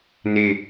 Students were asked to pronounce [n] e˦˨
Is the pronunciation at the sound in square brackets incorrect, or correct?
correct